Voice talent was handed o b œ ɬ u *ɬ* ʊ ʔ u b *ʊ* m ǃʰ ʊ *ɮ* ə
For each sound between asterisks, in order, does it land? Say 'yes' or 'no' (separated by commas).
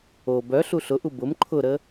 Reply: yes, yes, no